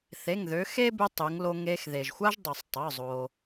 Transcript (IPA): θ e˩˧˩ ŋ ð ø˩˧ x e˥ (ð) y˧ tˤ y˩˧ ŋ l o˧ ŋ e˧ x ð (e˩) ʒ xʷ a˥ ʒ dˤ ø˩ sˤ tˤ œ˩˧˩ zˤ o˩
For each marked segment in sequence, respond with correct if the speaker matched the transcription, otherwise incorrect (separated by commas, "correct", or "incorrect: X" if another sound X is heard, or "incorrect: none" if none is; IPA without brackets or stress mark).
incorrect: b, correct